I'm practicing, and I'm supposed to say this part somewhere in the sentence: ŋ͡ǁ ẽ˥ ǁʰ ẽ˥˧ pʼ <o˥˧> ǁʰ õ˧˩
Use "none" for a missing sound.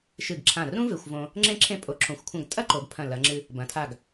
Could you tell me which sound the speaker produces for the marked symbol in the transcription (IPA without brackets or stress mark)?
o˧